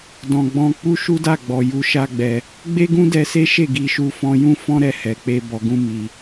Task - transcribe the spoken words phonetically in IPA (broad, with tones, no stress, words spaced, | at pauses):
dɔ̃˨ɡ͡bɔ̃˧ k͡pu˦ʃu˦da˦˨ɡ͡bɔ˨ ju˧ʃa˦ɡ͡bɛ˧ | ɡ͡be˦ ɡũ˦dɛ˧se˦ ʃe˦˨ɡi˧ʃu˧ fɔ̃˧jũ˦fɔ̃˦ ɾɛ˦˨hɛ˨˦k͡pe˦ bɔ˧ɡũ˦mi˧